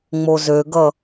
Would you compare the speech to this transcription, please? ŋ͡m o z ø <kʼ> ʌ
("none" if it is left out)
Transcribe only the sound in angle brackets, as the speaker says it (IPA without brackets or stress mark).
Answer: ɡ